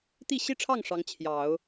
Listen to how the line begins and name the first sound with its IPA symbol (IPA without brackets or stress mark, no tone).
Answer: t̪